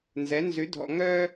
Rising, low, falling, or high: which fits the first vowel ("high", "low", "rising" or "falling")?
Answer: rising